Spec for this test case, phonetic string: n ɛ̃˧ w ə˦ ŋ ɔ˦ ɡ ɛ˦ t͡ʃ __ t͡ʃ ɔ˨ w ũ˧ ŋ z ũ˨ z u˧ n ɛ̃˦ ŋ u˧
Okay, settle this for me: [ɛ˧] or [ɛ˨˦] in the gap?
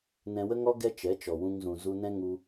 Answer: ɛ˨˦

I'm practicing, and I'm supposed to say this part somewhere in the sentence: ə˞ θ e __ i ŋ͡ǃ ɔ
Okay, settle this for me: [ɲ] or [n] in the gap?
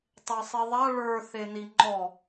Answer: n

